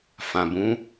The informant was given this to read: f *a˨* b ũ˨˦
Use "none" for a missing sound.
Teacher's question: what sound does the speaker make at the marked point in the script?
ã˨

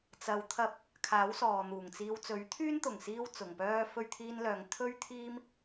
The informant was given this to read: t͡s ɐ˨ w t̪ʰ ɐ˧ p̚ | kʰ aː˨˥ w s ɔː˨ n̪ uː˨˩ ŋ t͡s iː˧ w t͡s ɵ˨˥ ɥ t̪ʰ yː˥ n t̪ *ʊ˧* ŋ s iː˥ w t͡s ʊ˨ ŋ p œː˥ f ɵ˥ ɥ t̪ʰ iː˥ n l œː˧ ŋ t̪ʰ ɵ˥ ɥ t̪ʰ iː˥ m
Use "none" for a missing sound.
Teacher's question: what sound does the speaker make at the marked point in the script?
ʊ˨˩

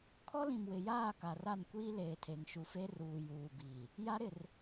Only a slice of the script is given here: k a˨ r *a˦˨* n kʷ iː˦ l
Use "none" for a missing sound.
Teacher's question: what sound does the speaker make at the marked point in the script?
a˦˨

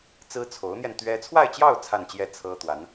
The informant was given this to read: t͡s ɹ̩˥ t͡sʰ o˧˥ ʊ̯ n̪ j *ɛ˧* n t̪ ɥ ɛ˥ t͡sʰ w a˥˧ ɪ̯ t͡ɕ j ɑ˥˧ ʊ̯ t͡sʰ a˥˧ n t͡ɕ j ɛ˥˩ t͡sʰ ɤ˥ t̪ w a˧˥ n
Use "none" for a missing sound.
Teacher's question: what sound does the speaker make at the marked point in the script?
ɛ˧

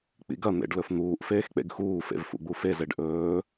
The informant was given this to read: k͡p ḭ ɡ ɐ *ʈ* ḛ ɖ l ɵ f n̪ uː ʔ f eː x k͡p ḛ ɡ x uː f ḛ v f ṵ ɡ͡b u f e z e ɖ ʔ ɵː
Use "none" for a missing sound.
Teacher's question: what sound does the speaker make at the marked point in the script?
n̪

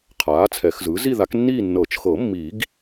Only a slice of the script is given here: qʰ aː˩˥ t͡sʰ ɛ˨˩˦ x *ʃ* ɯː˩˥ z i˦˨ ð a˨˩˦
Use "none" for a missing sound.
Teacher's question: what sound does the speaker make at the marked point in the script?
z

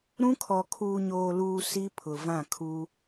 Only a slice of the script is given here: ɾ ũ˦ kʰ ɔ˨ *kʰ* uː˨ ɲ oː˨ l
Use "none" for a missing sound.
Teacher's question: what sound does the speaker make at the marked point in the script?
kʰ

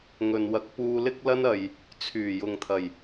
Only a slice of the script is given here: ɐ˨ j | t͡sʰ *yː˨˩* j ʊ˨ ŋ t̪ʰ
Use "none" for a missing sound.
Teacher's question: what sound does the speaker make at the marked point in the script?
yː˨˩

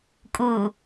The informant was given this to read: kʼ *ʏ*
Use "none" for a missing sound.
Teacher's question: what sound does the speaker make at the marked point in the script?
u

